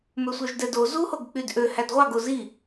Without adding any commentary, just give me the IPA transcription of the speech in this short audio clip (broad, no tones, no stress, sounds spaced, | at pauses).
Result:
m ø sʷ œ ʒ d ɛ d o z u h o ɡ k͡p y d ʔ ø h æ d ʁʷ ɑ ɡ o z i